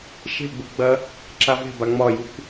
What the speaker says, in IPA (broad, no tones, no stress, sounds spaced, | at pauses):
ʃ e̤ ɡ͡b u ɡ͡b ɐ | ǁ a v e̤ b a ŋ͡m ɒ j u kʷ